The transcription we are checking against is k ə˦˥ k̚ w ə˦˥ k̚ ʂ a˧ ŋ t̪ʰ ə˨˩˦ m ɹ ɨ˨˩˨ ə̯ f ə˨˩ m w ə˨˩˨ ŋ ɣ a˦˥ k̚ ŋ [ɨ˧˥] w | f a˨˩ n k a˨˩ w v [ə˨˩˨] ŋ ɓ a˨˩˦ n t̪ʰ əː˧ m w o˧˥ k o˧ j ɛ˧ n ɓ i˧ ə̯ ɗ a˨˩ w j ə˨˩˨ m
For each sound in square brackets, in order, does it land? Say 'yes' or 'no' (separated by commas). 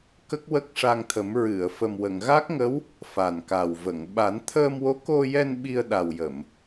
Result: no, yes